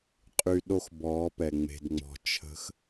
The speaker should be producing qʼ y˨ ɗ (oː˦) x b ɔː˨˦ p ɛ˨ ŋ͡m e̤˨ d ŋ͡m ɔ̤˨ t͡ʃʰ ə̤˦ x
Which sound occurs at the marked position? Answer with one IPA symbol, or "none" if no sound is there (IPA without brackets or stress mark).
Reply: o˦